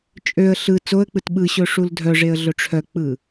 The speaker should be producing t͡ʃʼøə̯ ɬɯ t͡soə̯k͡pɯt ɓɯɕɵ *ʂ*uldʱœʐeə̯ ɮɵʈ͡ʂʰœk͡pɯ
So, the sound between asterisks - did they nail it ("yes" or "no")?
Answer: yes